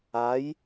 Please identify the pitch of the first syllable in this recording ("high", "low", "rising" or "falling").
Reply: rising